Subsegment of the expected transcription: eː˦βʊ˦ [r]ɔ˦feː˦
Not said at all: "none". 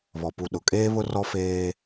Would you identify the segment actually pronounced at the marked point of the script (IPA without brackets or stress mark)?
r